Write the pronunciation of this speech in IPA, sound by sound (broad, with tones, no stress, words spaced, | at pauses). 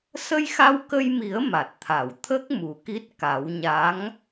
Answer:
sə˧jxa˧wkə˧jmi˨˩˦ə̯ ma˨˩t̚t̪ʰa˨˩˨w t̪ʰə˦˥k̚ mu˨˩˦ki˦˥t̚ ka˨˩˦wɲa˧˥ŋ